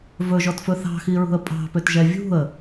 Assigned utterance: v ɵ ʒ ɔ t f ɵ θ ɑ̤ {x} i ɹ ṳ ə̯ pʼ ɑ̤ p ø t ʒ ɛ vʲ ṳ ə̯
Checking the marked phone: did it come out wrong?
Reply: no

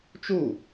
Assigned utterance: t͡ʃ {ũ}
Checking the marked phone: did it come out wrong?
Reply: yes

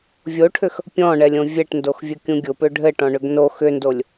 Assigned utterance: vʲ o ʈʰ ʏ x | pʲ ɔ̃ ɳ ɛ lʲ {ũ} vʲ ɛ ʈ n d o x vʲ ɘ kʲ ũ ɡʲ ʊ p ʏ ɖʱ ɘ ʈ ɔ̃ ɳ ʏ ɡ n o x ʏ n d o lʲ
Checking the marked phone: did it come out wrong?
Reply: yes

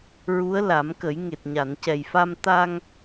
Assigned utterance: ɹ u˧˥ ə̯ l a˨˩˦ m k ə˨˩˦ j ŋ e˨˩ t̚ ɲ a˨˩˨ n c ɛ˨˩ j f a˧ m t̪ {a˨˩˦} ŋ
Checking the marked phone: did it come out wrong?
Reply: yes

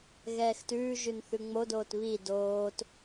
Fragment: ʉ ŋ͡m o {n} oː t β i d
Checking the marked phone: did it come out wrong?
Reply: yes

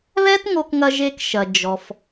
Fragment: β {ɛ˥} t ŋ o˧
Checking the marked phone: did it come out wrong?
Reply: no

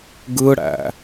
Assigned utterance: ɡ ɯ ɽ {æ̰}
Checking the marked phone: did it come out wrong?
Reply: no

